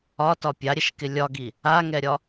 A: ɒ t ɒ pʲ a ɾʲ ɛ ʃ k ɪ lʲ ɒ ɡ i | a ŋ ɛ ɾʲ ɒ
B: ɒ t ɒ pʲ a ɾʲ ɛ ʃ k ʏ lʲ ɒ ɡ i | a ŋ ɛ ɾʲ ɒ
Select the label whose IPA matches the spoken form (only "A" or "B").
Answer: A